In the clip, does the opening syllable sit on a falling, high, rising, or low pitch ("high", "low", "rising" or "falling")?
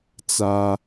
high